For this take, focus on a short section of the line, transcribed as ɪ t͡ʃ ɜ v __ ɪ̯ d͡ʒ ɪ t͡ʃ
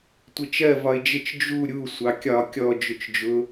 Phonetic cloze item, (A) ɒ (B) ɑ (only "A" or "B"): A